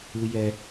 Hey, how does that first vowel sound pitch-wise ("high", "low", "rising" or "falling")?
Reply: high